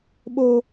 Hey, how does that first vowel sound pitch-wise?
high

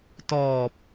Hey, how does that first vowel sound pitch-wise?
low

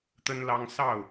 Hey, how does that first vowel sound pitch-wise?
high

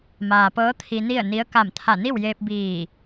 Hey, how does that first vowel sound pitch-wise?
low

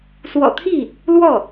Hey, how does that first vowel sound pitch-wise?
low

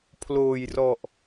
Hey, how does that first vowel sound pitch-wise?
low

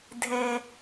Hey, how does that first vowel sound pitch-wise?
low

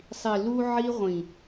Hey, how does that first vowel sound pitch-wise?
low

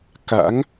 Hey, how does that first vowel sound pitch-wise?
rising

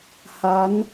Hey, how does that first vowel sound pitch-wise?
rising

